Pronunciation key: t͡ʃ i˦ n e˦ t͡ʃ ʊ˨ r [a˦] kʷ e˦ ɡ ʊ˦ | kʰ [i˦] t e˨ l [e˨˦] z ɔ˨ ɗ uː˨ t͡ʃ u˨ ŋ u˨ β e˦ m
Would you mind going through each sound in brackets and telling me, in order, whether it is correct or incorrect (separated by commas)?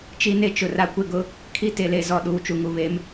correct, correct, correct